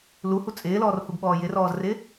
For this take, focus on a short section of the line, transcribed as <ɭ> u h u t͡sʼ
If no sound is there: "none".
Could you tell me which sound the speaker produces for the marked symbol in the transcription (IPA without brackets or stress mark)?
l